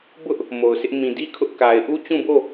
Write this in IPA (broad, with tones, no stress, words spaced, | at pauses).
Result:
bʊ˦ʔ | mo˨ʊ̯sʰɪ˦ʔ mĩ˨di˦ kʰʊ˦ʔ ka˨ɪ̯ʔu˦ t͡ɕũ˦˨bo˦˨